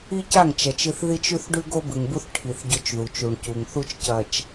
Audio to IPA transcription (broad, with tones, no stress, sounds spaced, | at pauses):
i˦ c a˦˨ ŋ t͡ʃ ɐ˨ t͡ʃ ɨ˨ θ ð i˦ t͡ʃ ʉ˦ θ ɖ ʉ˦ ɡ o˦ b ɨ˨ ŋ b u˦ θ ʈʰ i˨ θ ɟ ɵ˦ t͡ʃ ð u˨ t͡ʃ u˨ ɳ c u˨ ŋ θ u˦ t͡ʃ c ɐ˨ t͡ʃ